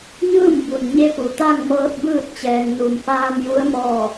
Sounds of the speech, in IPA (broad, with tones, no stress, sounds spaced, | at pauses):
ɲ ɯː˥˨ m b u˩ n ɲ e˧˥ p u˩ t̪ a˥˨ ŋ m ɤː˧ t̚ b ɯː˥˨ t̚ t͡ɕ ɛː˩ ŋ n u˩ m f aː˧ m j u˧˥ ə̯ m ɔː˥˨